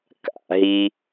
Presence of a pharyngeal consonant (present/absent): absent